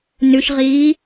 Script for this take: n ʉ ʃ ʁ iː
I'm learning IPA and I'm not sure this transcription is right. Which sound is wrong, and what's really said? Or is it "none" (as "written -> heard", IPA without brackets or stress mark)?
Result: none